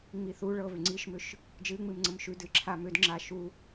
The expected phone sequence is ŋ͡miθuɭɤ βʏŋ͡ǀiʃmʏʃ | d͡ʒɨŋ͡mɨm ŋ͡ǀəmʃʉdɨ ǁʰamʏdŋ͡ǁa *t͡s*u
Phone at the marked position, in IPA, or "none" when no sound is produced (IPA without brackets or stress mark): ʃ